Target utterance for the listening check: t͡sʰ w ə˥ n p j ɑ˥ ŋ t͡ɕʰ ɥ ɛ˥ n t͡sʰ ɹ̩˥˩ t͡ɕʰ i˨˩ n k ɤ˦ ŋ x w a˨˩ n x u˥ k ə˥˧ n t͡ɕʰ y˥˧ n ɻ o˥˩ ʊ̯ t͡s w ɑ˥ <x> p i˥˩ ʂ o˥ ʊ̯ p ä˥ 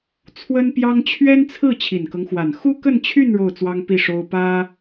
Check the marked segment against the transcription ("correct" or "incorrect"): incorrect